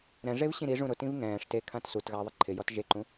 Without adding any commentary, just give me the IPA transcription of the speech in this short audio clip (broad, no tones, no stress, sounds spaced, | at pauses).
ɾ ɛ̃ ʐ e v ɕ ĩ ɾ i ʐ ũ ɾ ʊ t ĩ v ŋ ɛ̃ː ʂ t e kʰ ã t s u t ɣ a ɐ̯ ðˤ ɪ ǃʰ ɪ j ɔ t ʒ e ǃ ũ